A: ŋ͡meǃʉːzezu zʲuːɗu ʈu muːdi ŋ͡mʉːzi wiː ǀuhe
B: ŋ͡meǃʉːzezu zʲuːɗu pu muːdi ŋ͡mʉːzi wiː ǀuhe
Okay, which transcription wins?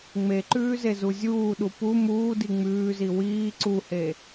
B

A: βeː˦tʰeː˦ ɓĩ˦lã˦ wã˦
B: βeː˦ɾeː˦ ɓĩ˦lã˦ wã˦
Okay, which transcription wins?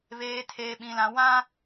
A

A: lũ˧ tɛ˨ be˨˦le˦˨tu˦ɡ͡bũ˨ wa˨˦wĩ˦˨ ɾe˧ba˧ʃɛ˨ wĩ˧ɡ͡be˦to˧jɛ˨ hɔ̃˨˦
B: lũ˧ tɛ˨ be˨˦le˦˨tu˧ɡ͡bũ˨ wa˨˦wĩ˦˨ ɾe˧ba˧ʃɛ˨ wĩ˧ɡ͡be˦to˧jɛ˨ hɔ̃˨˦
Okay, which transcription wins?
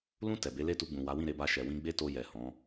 B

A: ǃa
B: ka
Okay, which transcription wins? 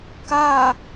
B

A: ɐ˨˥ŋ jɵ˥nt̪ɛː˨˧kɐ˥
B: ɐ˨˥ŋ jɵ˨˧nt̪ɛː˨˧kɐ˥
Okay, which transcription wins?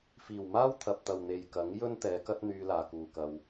A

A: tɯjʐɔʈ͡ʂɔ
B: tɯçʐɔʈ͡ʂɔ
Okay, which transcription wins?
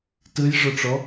A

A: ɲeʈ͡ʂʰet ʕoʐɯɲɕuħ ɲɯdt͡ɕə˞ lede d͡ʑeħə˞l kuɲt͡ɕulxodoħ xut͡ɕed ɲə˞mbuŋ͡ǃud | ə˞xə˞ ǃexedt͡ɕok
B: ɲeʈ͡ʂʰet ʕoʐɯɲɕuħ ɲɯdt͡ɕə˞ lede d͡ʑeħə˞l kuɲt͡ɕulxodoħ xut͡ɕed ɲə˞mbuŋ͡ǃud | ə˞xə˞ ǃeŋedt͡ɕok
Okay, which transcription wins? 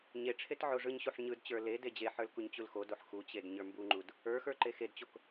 A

